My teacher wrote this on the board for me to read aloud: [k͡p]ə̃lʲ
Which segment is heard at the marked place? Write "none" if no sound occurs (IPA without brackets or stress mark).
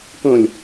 k